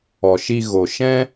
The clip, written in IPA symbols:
ɔ˨ ʃ i˧ ɣ o˨ ʃ ɛ̃˦

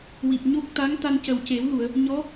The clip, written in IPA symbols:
w i˨˩ p̚ ɲ o˦˥ k̚ t̪ a˧˥ ŋ t̪ a˧ n c ə˨˩ w c e˨˩˦ w l u˨˩˨ ə̯ | ɲ ɔ˧˥

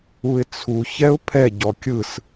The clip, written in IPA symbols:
u ɪ̯ t͡sʰ u ç ɛ ʊ̯ pʰ ɛ ɟ ɔ kʲ ɯ s

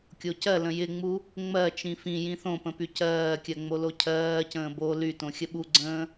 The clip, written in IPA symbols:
kʲ o c ɜ l ə̃ j ɪ ŋ͡m u | ŋ͡m ɜ t͡ʃ ĩ f ĩ j ĩ θ õ p ə̃ p y c ɜː kʲ ɜ ŋ͡m o l o cʰ ɜː c ə̃ː b o l y t õ xʲ ə ɓ u ɡ͡ǀ ə̃ː

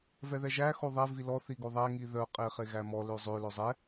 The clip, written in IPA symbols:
v ɛ ð ɛ ʒ æ x o ðˤ ɛ v i l ɔ θ i ɡ o ðˤ æ ŋ i ð œ qʼ e χ e ɣ æ m ɔ l ø zˤ ø l œ zˤ ɛ

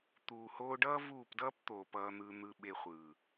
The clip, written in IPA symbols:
t̪ uː˨ h oː˧ ɖ ʌː˦ v uː˦˨ p d ʌː˦ p t̪ oː˨ p ʌː˧ n̪ ɯ˧ n̪ ɯ˧ ɓ e˧ χʷ ɯ˨

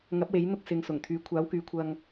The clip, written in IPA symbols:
ŋ ɐ˨˥ p̚ w e˨˥ j n̪ ʊ˥ k̚ s ɪ˨˧ ŋ s ʊ˨˩ ŋ t̪ʰ yː˨˧ kʷʰ aː˨˥ w k yː˨ kʷʰ ɐ˧ ŋ

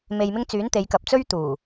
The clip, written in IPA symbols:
m e˨ j m ɪ˧ ŋ t͡s yː˨˥ n t̪ e˨˧ j k ɐ˨ p̚ t͡s ɵ˥ ɥ t̪ uː˨˩

